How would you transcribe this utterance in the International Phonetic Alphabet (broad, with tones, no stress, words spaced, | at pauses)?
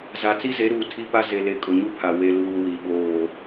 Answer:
za˨ t͡si˦ze˨˦ɾuː˨ tʰi˦pa˦ ze˨le˨ kʼʊ˨ɲu˦ pʰa˨ we˨ luː˨ wi˨ ɓoː˨